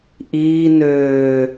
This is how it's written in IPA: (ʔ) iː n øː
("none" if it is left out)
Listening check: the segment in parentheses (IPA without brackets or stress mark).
ʔ